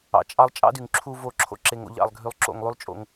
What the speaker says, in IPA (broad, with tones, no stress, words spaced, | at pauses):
ɑ̰˨t͡ʃʼɑ˦lˠ t͡ʃʼɑ̰˦dy˨ŋǁʰu˧ vo˦˨ ǁʰo̰˧ǁe˨ŋ o̰˧ʎɑ̰˦˨lˠɡʱy˧lˠ ǁo̰˦˨ŋlˠy˦lˠt͡ʃʼo̰˧ŋ